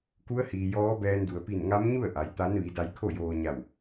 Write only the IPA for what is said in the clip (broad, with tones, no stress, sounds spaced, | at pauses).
k u˧˥ ə̯ h iː˩ j ɔː˧˥ b ɛː˧ n d u˩ ə̯ p i˧˩ n ŋ a˧˥ m ɲ u˥˨ ə̯ ʔ a˩˧ j t̪ a˧˥ n ʋ i˩˧ d a˧ j kʰ o˥˨ j oː˧ ɲ a˧˩ w